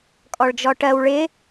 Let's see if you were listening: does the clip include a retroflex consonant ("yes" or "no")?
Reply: yes